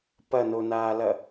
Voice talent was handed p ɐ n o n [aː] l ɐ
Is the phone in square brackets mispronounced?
no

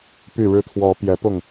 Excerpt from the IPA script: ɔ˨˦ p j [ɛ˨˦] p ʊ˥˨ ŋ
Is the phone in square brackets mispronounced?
no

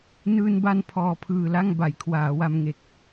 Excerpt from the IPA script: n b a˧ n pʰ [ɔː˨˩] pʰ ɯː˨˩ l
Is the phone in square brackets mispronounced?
no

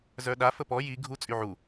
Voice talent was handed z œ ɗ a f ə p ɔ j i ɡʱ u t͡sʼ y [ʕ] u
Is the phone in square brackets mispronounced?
no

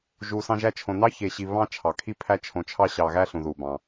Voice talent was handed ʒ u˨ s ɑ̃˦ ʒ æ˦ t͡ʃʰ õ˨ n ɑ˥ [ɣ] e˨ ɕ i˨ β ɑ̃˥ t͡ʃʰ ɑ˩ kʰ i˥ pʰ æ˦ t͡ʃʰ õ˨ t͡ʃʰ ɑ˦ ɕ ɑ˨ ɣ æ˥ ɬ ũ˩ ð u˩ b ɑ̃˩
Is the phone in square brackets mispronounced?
yes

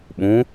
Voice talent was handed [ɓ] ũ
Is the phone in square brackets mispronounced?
no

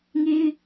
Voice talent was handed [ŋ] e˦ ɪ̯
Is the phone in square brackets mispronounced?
no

